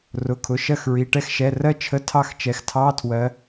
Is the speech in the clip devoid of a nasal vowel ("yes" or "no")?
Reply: yes